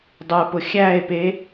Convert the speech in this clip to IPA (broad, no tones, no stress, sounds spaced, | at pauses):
dˤ ə˞ p ʊ xʲ æ e̯ p e